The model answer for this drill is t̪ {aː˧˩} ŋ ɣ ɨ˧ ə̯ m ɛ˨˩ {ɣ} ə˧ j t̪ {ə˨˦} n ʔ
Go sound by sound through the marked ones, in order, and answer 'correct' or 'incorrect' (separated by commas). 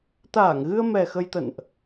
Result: correct, incorrect, incorrect